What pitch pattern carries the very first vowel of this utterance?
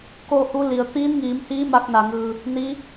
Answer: falling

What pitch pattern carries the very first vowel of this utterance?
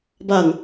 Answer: low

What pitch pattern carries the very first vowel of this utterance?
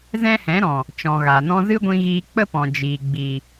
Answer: high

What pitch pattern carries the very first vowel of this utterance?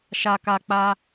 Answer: low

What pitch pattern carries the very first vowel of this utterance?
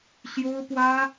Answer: high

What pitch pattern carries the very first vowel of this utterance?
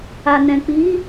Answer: low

